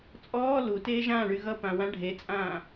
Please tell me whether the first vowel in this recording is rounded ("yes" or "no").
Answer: yes